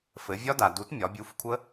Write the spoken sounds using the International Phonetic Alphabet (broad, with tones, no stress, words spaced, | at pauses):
fɘ˩˧vʲɒ˦˥da˩du˩˥t mʲɒ˩˧bʲu˩˧˩fkʷʰə˦˥